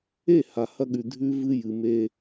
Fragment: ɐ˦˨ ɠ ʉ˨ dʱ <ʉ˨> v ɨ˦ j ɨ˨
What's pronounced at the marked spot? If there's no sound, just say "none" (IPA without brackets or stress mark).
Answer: ʉ˦